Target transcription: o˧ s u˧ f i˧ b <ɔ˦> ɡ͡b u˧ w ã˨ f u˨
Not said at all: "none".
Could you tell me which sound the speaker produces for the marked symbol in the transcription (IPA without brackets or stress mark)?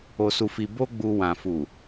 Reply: o˦